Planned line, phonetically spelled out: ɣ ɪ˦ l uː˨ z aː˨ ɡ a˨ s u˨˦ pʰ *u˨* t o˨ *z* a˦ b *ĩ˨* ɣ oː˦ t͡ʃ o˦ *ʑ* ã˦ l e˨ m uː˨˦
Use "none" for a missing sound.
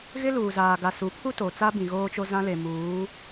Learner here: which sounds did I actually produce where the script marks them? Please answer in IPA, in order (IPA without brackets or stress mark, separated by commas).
u˦, t͡s, ĩ˨, z